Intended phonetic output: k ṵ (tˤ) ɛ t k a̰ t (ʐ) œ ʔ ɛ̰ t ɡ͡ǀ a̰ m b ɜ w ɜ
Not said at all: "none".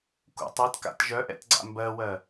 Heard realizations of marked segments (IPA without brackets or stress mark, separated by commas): tˤ, ʒ